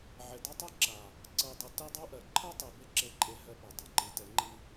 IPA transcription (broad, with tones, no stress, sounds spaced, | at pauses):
ʕ e˨ d a˦ tˤ ɜ˦ ǁ a˨ | ǀ ɜ˨ dˤ i˨ t ɛ˦ dˤ a˦ ʔ ɜ˨ ǃʰ ɜ˦ tˤ e˨ b e˦ ǁ e˦ ǃʼ e˦ ɦ ɜ˦ p ɛ˨ dˤ e˨ ǃ i˨˦ t ɛ˨˦ ŋ͡ǃ i˦